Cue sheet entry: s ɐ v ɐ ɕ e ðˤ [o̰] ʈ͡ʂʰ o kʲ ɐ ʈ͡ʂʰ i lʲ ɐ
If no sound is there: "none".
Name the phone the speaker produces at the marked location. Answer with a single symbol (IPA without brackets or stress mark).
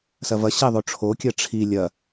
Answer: o